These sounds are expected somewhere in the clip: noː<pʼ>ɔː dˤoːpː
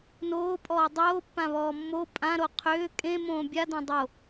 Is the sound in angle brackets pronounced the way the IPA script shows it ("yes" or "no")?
yes